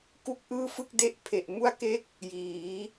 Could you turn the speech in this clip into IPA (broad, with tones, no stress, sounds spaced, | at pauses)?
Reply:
k u˥˩ k̚ ʔ ɯː˥˩ f ɯ˥˩ k̚ d e˥˩ ʔ pʰ e˨˩ ʔ m u˥˩ a̯ k e˥˩ k̚ | j iː˩˦